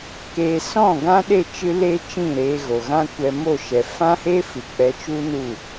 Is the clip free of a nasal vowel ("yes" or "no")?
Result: no